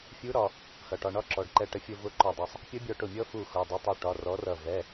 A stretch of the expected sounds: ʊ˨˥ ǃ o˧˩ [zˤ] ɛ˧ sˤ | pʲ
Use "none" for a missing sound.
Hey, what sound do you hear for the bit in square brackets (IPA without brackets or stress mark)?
dˤ